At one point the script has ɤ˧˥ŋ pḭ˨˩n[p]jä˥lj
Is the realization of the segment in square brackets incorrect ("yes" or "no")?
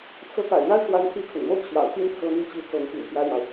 no